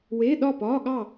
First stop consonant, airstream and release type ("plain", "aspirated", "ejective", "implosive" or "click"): implosive